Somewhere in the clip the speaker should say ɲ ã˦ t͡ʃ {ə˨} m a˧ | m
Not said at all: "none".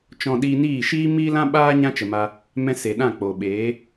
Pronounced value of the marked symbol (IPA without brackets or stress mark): ə˨